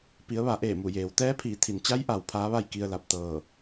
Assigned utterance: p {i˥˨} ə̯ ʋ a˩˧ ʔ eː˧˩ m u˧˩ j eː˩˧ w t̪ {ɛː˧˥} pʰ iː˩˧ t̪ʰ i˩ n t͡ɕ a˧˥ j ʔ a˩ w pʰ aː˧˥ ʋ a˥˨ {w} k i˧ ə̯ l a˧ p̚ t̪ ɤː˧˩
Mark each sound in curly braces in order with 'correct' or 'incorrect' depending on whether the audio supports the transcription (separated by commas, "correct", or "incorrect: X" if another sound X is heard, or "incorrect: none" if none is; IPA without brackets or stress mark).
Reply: incorrect: i˩˧, correct, incorrect: j